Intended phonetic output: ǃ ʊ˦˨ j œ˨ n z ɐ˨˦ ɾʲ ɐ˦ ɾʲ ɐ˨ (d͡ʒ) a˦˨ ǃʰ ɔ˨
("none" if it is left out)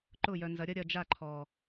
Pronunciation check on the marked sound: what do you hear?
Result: d͡ʒ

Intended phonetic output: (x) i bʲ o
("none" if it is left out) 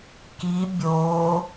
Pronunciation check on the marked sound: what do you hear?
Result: k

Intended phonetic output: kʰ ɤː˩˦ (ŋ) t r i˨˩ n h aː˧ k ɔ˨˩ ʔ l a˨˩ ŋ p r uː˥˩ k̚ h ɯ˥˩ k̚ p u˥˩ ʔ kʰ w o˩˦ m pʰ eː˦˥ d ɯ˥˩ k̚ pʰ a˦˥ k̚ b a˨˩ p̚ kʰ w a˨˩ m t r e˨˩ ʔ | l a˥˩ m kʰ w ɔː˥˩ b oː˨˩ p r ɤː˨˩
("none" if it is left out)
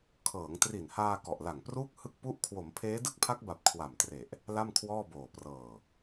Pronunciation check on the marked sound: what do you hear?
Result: ŋ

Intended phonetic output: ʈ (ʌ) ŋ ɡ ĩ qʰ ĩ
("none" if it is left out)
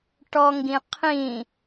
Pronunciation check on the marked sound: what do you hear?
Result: ɔ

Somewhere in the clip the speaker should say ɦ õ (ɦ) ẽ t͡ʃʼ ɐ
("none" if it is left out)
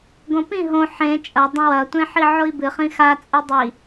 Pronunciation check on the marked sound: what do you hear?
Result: ħ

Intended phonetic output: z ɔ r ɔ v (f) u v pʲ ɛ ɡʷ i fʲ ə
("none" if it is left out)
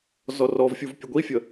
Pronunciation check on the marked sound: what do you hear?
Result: fʲ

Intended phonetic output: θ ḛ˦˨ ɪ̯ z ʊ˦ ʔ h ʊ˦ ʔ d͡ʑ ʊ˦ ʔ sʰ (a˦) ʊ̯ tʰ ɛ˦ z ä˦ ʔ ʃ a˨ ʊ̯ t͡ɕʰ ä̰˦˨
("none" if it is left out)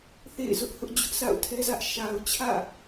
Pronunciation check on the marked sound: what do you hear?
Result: a̰˦˨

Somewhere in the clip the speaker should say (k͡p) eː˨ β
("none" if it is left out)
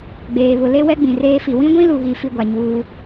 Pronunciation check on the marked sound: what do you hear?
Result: ɡ͡b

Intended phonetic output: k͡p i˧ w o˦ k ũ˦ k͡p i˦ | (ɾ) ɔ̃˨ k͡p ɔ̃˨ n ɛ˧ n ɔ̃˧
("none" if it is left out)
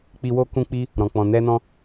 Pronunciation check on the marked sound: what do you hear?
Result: ɾ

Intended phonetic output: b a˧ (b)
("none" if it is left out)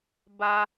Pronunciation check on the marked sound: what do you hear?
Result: none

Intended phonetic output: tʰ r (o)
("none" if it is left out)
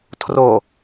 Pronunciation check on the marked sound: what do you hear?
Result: o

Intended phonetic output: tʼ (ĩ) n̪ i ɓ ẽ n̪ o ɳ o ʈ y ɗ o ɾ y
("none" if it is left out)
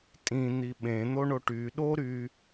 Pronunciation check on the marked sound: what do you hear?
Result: ĩ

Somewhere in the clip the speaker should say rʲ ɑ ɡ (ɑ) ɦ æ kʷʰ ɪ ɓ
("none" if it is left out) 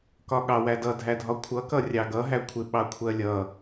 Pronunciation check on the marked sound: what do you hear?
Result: ʌ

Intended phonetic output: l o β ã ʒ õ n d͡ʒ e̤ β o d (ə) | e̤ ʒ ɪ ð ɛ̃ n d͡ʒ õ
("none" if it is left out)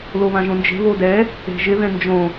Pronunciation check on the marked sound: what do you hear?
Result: ɛ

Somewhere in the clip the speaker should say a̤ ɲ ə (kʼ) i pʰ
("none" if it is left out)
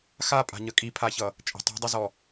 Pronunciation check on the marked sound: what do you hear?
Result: kʼ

